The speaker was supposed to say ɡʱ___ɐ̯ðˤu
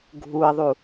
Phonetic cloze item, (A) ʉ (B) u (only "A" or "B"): B